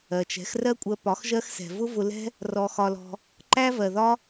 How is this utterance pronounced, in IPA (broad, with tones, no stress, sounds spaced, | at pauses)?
ɜ˨ t͡ʃ ɛ̤˨˦ x r ɜ˦ kʷʼ ɜ˧ p ɒ˨˦ x ʒ ɜ˦ x s ɛ̤˨ v ʊ˦ v ʊ˧ l ɛ̤˦ | r ɔ˧ x ɒ˧ l ɔ̤˧ | ǃ æ˦ v ɜ˨ ð ɒ˦